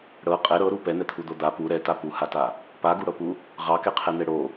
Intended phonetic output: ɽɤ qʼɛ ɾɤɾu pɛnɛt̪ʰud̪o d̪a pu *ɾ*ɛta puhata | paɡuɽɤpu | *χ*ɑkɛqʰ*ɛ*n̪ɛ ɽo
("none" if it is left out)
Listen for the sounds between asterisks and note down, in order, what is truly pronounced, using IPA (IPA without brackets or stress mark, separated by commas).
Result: ɾ, ʁ, ɛ